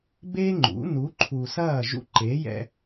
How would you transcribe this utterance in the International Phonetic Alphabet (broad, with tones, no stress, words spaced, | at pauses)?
beː˦ŋ͡ǃṵ˨˦ nu˨˦ǃʰu˨sɐː˦˨ ʒṵ˧ǃe˨˦jɛ̰˧